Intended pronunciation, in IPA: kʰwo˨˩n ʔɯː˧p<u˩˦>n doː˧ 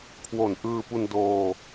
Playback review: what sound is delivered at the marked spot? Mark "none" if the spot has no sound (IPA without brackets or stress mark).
u˧